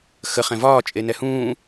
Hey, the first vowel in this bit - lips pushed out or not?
no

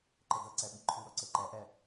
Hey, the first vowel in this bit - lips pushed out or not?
no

